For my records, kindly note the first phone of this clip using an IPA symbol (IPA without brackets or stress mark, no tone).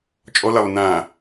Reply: t͡ʃʼ